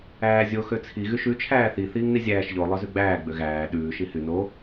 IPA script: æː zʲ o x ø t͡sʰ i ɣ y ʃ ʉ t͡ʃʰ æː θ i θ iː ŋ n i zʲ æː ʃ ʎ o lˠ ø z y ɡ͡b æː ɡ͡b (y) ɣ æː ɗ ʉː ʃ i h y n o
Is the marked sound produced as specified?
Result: no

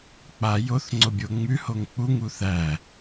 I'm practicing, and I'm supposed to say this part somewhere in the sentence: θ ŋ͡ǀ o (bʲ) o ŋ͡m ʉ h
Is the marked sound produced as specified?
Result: yes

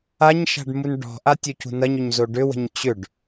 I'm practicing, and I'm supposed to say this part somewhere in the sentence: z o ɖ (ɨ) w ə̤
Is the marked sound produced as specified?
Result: no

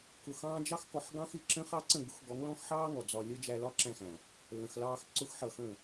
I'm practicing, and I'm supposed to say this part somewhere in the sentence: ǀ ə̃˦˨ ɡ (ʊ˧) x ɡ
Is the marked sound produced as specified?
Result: no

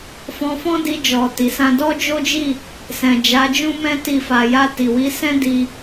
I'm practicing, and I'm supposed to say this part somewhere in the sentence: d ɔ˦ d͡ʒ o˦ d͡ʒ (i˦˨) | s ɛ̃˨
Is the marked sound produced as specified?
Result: yes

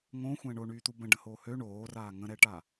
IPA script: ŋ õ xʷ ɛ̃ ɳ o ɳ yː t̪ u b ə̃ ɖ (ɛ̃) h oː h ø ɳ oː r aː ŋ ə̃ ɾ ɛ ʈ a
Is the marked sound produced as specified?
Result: no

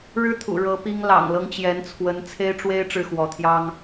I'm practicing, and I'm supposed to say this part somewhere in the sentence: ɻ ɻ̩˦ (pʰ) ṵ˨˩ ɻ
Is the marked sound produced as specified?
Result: no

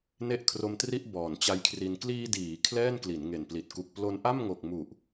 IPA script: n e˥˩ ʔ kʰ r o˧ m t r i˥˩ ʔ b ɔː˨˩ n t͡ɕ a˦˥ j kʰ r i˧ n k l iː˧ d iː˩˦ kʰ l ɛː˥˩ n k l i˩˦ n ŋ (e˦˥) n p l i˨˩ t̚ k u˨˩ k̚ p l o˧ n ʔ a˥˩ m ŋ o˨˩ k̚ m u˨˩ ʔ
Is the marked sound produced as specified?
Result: no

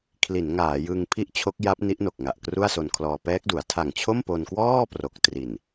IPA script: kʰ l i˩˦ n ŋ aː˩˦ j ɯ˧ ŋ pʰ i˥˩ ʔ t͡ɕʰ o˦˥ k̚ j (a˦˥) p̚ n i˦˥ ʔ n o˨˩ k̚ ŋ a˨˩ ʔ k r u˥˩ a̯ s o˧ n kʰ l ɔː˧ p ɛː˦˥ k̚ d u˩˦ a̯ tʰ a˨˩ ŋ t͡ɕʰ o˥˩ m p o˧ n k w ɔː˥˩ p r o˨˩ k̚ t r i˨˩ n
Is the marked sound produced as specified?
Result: yes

